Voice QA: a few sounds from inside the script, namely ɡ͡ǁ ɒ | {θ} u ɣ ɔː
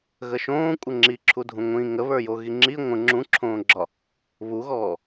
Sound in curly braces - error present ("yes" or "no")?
yes